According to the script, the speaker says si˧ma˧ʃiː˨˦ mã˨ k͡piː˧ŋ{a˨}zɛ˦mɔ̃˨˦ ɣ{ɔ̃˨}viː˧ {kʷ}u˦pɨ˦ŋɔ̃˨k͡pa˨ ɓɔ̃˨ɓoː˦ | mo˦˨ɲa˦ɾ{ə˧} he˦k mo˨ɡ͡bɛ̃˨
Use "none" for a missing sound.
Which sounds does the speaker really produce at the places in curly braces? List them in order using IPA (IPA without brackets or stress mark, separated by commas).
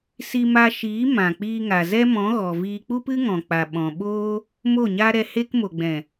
a˨, ɔ˨, k͡p, ɛ˧